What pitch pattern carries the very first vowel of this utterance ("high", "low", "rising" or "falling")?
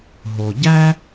low